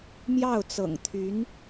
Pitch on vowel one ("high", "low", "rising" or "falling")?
falling